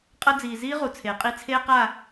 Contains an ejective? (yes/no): yes